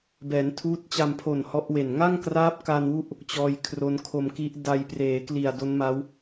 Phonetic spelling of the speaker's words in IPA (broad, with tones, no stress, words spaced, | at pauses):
bɛː˩˦ntʰuː˦˥t̚t͡ɕa˧mpʰo˨˩n hɔ˦˥ʔwe˨˩n ŋa˥˩ŋkraː˦˥p̚ ka˧nwu˦˥ʔ | t͡ɕɔː˧jkʰro˦˥n kʰo˧mki˦˥ʔ da˧j preː˩˦kli˨˩a̯do˦˥nma˦˥w